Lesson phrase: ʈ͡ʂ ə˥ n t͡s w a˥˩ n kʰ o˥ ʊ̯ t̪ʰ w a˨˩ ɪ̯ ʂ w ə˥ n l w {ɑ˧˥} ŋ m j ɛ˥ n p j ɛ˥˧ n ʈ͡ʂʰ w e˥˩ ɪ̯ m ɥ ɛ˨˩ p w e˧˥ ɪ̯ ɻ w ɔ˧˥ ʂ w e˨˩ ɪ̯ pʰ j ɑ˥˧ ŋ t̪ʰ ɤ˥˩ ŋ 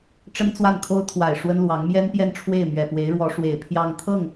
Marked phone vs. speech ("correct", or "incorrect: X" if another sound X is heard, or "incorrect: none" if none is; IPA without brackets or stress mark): correct